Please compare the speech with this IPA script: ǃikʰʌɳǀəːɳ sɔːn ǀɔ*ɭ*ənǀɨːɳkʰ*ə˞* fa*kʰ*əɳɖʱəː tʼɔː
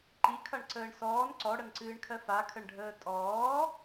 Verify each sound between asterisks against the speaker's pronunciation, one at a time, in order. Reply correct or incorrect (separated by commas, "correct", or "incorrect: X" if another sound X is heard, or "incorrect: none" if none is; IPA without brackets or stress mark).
incorrect: ɽ, incorrect: ɜ, correct